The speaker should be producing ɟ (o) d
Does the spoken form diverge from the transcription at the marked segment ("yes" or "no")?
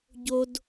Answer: no